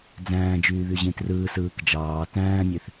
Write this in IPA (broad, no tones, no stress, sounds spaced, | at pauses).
d͡z æ̃ː d͡ʒ yː β y ʑ ĩ t r ɯː s ɯː k d͡ʒ ɑː t æ̃ː mʲ e θ